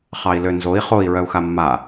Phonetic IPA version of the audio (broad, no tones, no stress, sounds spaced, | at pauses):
χ ɑ i̯ l ø n z o i̯ χ o i̯ ɹ œ u̯ x a mː a